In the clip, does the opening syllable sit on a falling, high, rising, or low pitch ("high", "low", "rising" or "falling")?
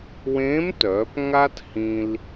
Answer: rising